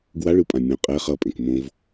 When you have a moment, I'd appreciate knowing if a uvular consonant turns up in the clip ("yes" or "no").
yes